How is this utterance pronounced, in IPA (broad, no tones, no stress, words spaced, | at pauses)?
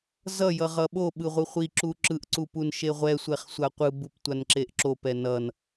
zʌ jʌʁʌɓo ɓɯʁʷɯχʷi ǁuǁɯʔ ǀupunʃeʁʷɛ sʷɛχsʷaqʷɯ buptʷanǁeʔǁop ɛnʌn